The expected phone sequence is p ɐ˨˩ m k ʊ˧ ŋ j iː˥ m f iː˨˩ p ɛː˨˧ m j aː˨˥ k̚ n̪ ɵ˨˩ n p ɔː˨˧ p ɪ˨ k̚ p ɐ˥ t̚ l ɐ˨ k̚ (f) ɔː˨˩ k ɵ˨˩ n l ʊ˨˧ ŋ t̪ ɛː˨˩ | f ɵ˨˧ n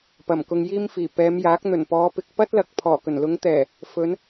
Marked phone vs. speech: incorrect: pʰ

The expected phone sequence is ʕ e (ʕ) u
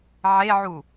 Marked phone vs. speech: correct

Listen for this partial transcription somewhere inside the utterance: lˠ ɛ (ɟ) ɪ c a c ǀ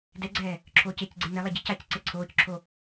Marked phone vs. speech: correct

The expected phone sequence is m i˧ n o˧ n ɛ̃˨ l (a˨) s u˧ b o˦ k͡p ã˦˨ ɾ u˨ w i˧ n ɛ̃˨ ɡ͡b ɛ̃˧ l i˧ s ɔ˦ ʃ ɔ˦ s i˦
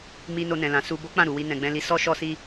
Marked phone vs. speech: incorrect: ã˨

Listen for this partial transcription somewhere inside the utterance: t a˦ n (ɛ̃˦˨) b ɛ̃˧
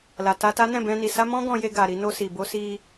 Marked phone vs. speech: correct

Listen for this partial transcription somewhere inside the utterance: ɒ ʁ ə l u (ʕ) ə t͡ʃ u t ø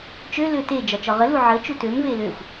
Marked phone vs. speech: correct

